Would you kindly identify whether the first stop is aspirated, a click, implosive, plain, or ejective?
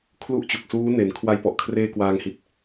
aspirated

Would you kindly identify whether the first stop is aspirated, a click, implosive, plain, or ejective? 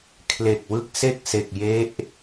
aspirated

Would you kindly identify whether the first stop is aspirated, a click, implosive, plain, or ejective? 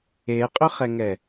ejective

